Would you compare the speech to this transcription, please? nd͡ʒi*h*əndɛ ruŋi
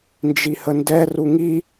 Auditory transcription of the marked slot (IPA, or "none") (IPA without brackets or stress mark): h